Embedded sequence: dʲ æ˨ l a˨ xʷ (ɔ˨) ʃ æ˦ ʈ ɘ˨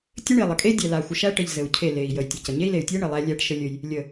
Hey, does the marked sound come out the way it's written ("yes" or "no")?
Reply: no